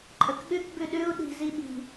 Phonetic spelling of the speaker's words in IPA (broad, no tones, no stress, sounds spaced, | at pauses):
ǃʼ ə k ɠ ʉ k b ʉ ɗ ʉ u̯ ɗ i̤ z i ɓ i̤